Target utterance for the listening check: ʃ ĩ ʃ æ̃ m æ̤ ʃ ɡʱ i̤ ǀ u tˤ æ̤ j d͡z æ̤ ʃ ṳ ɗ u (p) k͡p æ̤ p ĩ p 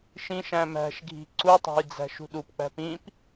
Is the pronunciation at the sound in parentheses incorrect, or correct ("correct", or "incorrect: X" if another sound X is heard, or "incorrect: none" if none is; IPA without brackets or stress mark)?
correct